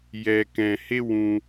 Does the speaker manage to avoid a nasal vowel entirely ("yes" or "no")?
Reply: no